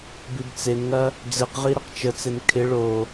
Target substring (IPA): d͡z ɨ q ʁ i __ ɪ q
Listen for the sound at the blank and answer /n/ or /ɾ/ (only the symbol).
ɾ